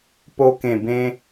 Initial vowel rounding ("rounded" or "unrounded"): rounded